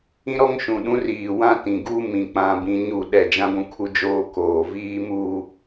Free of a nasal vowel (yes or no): no